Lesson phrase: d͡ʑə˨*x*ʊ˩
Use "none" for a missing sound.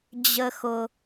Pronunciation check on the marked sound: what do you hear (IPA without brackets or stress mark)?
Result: x